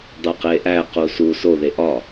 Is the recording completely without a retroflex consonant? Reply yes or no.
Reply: yes